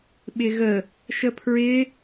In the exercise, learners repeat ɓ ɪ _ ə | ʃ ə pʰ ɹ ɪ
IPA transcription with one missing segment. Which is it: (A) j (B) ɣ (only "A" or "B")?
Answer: B